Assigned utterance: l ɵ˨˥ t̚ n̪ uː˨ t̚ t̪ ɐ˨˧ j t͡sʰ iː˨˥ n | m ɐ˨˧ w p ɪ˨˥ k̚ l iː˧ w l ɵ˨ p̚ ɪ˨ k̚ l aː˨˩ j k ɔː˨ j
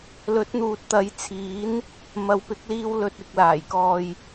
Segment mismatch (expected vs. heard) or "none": p̚ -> t̚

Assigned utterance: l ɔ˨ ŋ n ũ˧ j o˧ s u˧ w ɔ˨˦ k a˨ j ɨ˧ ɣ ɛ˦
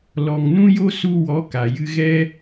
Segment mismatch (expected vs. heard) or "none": none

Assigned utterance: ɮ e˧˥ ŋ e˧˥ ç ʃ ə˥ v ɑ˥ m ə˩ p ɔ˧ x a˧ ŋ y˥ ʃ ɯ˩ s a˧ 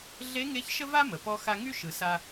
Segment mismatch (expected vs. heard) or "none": ɑ˥ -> a˥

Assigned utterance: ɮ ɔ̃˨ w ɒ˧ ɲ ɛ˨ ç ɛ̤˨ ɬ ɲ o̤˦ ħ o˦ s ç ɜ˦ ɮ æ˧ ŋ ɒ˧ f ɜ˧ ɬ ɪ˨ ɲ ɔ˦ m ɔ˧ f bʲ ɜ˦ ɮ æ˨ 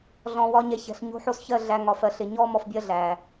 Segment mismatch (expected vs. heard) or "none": none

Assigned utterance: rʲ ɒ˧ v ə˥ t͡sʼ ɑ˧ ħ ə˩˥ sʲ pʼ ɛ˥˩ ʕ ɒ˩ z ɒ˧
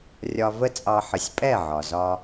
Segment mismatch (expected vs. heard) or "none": none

